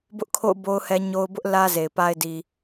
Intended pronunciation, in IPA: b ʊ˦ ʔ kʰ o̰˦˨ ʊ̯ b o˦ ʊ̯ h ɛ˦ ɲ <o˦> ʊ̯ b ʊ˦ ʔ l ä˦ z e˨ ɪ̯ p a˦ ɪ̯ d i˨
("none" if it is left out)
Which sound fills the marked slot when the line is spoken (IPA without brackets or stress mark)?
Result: o˦